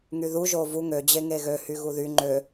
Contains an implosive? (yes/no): no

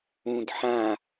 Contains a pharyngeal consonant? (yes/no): yes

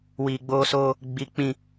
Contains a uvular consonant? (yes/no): no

